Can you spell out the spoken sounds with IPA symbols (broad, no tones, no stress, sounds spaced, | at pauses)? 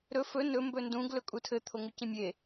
ɾ ɵ f ɵ n ɵ m b ɵ n d ũ ɡ l ɵ kʼ u tʰ ɘ t̪ʰ o ŋ u c ẽ mʲ e